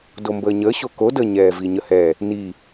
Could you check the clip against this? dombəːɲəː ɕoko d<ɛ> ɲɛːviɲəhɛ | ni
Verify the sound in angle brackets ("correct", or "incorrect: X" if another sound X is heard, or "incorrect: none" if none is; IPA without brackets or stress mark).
incorrect: ə